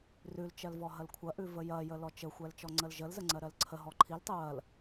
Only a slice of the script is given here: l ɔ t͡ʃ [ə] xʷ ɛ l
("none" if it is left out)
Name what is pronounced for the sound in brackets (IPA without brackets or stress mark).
ə